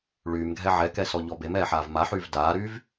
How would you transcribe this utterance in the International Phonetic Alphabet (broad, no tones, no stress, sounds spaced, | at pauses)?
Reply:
ɭ yː m ɡʱ ɛ ʕ ɛ k ɛ s ɔ ʎ ɔ b e m ɛː ħ aː v m a ħ yː v d aː ɾ yː v